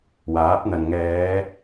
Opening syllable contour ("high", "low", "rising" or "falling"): rising